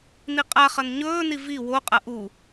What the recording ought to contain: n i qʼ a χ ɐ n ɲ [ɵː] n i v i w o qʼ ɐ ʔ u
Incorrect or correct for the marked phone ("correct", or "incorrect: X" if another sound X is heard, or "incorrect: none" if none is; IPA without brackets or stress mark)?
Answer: correct